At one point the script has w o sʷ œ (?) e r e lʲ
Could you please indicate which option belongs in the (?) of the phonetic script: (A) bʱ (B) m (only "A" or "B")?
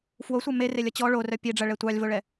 B